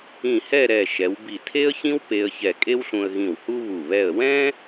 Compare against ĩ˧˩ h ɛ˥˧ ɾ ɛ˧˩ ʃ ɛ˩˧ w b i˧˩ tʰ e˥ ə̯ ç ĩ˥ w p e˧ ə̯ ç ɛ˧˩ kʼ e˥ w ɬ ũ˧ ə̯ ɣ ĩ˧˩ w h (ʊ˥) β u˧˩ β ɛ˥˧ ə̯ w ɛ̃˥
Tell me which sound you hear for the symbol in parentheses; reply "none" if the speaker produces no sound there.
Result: u˥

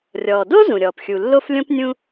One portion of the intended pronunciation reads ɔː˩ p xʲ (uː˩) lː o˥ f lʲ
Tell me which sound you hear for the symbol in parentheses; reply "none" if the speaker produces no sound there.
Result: u˩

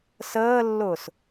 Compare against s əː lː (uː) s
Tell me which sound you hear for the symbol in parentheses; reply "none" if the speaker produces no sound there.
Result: ʊː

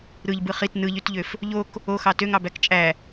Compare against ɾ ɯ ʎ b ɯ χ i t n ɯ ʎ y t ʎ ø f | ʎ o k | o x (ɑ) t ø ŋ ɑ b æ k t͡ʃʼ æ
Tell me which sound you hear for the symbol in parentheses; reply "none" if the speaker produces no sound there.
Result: ɑ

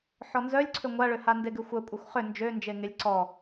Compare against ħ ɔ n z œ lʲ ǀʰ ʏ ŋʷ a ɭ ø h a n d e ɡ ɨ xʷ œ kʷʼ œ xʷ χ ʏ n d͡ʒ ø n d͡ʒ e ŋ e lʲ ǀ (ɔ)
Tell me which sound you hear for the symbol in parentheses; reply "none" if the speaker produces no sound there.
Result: ɔ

